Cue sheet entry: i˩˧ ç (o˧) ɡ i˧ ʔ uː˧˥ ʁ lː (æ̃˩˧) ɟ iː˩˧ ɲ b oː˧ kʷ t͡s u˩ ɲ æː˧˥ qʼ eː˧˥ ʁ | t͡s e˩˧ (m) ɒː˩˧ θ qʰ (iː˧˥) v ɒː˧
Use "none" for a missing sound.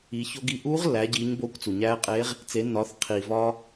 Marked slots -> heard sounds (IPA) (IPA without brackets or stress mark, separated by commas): o˧, æ˩˧, nː, iː˩